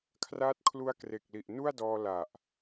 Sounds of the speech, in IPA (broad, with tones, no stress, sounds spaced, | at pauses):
kʰ r aː˦˥ t̚ kʰ l u˦˥ a̯ k r e˨˩ k̚ l i˨˩ ʔ n u˥˩ a̯ d ɔː˧ l a˨˩ ʔ